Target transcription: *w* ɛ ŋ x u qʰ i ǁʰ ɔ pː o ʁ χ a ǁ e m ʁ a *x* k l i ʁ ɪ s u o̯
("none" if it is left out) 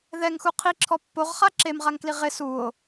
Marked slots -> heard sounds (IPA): ð, ŋ

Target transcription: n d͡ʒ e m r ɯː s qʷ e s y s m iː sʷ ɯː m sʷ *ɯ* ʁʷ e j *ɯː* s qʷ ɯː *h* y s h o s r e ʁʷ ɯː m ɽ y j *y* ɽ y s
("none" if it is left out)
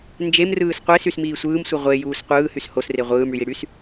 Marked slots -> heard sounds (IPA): ɯ, uː, h, i

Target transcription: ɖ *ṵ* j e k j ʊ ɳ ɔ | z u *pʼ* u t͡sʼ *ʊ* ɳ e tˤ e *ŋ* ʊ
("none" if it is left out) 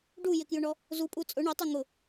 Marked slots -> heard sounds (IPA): u, pʼ, ʊ, ŋ

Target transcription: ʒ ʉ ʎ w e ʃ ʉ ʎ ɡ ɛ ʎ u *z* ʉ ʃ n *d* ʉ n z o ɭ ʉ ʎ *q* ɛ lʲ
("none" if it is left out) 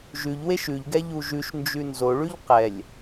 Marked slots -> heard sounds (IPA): ʒ, d͡ʒ, q

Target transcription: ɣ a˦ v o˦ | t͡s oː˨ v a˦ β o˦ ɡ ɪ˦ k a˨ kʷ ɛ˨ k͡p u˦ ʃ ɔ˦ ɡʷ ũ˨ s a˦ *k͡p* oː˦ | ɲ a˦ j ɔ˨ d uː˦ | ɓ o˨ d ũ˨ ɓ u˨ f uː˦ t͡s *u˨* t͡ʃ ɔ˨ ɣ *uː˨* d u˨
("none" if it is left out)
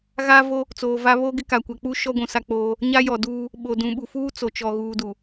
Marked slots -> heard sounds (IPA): k͡p, o˨, uː˨

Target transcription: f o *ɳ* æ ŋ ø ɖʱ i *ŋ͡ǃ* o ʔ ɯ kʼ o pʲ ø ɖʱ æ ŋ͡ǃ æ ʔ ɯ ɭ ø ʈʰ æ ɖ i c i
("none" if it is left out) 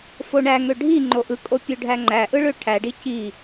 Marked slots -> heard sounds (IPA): ɳ, ŋ͡ǃ

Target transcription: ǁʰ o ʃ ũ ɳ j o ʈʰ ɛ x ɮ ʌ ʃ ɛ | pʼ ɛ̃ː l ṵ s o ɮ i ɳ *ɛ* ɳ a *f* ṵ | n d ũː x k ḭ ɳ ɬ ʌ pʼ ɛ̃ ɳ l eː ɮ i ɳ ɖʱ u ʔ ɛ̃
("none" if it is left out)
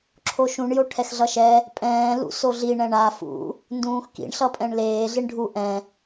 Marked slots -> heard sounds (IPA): ɛ̃, f

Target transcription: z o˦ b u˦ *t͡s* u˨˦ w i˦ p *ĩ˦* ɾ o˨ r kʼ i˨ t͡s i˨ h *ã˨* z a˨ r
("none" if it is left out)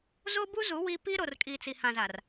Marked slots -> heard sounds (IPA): z, i˦, ã˨

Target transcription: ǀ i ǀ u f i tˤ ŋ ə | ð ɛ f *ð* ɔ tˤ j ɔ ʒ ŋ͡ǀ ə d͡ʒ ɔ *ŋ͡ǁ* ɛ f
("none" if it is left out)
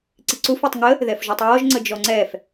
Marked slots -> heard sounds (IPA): ʒ, ŋ͡ǀ

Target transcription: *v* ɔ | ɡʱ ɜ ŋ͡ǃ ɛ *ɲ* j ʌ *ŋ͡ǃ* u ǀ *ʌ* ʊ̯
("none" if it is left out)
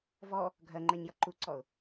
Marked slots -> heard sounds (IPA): v, ɲ, ǃ, ɔ

